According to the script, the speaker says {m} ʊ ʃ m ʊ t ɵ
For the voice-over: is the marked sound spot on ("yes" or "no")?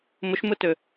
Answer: yes